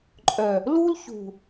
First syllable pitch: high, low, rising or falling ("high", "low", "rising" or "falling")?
low